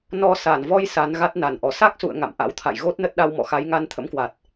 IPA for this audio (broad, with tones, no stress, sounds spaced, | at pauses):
n ɔ˧ s a˧˩ n v ɔ˧ j s a˨˦ n ɣ a˦˥ t̚ n a˨˩ n ʔ ɔ˨˩ s a˦˥ k̚ s ṵ˧˨ ə̯ ŋ a̰˧˨ m ʔ a̰˧˥ w t̪ʰ a̰˧˨ j ɣ o˦˥ t̚ n ə˦˥ t̚ ɗ a˧ w m ɔ̰˧˨ x a˨˦ j ŋ a˧ n t̪ʰ ə̰˧˥ m k w a˨˩ t̚